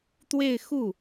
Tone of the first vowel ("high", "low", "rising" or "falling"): falling